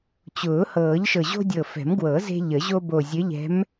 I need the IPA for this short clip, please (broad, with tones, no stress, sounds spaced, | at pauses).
t͡ɕ ʊː˨˩˦ h ɤː˨˩˦ ʎ ʃ ɤ˨˩ ʑ o̤˦ dʲ ɤ˨˩ f ɛ̤˨˩˦ m ɡ w ɤ˨˩˦ z e̤˦ ʎ ə˨˩˦ ʑ o˦ b o˨˩ zʲ ɘ˨˥ ʎ ɛ̤˨˥ m